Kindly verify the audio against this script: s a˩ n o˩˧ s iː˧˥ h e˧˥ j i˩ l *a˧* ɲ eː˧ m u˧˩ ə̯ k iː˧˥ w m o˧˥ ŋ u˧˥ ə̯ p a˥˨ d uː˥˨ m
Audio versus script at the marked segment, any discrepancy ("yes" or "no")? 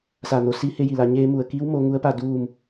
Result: no